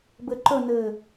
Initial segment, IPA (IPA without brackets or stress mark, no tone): b